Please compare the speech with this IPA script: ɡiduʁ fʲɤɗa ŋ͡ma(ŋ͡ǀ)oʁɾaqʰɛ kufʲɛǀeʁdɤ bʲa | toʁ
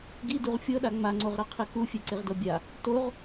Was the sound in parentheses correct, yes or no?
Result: yes